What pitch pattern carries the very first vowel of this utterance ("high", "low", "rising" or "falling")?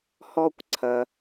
high